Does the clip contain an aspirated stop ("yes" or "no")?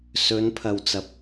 yes